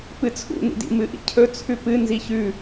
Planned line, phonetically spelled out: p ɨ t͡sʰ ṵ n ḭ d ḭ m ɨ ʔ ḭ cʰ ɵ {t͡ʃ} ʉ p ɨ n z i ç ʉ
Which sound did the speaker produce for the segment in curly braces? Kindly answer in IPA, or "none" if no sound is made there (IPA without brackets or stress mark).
t͡sʰ